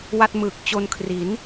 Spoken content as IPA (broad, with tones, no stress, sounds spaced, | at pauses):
w a˥˩ t̚ m ɯː˨˩ k̚ t͡ɕ o˧ n kʰ r i˩˦ n